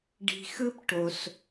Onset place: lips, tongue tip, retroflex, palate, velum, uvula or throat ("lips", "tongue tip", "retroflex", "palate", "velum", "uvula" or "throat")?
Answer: retroflex